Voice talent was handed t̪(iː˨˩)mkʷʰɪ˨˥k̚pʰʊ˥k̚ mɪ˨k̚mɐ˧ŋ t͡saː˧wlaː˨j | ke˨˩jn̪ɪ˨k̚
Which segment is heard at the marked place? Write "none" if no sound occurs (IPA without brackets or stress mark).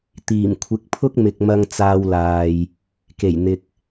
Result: iː˨˩